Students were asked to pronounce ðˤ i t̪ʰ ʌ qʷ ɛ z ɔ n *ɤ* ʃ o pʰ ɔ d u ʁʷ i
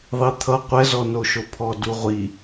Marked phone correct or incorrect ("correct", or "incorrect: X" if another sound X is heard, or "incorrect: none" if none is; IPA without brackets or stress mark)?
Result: incorrect: o